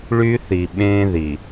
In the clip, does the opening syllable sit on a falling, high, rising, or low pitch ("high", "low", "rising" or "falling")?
high